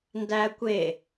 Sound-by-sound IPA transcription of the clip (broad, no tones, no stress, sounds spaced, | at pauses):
n d æ kʷ e